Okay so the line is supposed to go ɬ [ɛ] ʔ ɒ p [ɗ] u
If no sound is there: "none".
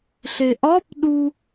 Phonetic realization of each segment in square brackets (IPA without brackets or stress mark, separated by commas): e, ɗ